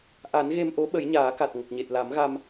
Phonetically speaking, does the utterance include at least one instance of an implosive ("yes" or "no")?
yes